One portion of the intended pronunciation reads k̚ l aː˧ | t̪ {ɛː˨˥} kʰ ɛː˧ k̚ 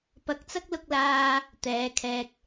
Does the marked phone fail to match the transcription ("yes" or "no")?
yes